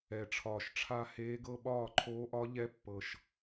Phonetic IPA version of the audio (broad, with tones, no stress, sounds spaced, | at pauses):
ɛ˨˩ ʈ͡ʂʰ ɒː˨˩ ʃ ʈ͡ʂʰ a˥˧ h eː˧˥ ɡ ɤ˥˧ ɓ ɒː˥˩ ǃʰ oː˧˥ ʔ ɒ˧˥ ʎ ɛ˧˥ pː ɤ˨˩ ʃ